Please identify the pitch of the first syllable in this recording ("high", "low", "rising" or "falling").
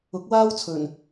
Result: rising